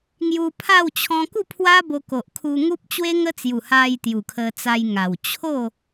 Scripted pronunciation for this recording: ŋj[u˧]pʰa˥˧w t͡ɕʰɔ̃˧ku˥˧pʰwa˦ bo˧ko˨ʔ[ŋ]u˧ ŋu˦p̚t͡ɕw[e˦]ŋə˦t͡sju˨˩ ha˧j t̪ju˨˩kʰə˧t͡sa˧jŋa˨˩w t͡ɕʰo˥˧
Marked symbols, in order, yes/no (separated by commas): yes, no, yes